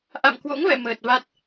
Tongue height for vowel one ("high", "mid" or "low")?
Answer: low